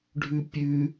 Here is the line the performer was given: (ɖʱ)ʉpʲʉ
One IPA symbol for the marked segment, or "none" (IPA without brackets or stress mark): ɖʱ